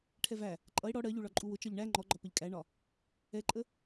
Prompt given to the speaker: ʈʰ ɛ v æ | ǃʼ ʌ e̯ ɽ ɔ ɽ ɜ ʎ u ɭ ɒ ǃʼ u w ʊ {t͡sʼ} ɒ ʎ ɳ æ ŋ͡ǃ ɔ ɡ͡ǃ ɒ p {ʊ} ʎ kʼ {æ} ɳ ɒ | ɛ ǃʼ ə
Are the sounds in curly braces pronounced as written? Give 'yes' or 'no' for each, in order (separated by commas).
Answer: no, no, yes